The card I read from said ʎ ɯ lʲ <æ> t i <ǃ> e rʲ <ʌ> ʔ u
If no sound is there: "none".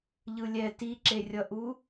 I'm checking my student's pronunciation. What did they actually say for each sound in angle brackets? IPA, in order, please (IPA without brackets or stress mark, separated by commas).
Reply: ɛ, ǁ, ʌ